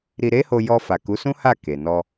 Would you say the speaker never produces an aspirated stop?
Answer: yes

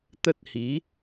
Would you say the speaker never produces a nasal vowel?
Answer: yes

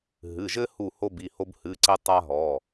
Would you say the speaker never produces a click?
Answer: no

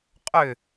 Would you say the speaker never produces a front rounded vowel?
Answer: no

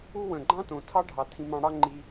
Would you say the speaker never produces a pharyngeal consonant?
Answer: yes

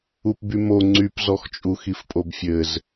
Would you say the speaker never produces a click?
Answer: no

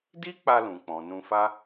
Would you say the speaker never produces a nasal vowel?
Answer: no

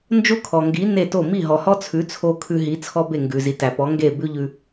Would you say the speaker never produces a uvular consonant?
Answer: yes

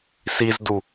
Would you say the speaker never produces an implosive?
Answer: yes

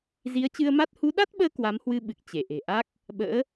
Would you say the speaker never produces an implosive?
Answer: no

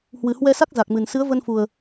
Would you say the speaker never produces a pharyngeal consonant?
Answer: yes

